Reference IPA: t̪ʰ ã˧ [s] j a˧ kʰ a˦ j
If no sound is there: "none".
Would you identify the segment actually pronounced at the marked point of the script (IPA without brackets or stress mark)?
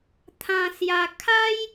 s